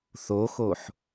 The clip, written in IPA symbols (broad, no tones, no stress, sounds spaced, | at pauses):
θ o x o ħ